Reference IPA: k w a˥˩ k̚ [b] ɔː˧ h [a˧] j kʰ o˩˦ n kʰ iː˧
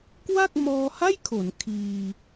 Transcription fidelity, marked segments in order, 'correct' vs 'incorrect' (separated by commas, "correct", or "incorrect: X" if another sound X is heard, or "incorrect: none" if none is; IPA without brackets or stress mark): incorrect: m, incorrect: a˥˩